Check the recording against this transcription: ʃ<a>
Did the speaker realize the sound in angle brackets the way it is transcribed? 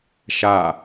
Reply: yes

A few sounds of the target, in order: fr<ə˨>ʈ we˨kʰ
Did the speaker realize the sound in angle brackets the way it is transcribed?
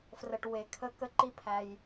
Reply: yes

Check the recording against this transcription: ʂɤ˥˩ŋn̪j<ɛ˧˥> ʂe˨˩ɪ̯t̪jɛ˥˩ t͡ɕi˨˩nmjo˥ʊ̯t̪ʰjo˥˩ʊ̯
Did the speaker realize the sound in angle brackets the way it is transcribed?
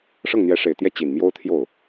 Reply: yes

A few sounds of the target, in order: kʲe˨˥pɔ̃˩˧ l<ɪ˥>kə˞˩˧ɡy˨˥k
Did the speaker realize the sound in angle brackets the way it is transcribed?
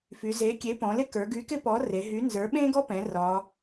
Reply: yes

